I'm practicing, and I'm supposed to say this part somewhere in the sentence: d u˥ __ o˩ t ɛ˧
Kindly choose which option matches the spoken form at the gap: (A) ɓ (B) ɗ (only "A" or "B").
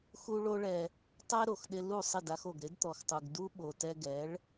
A